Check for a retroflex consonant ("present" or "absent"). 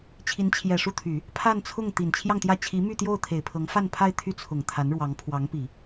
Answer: present